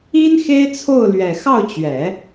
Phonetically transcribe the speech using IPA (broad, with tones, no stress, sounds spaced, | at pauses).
i˥ n x e˥ ɪ̯ t͡sʰ o˥˩ ʊ̯ l ɥ ɛ˨˩ x ɑ˥˩ ʊ̯ t͡ɕ ɥ ɛ˨˩˦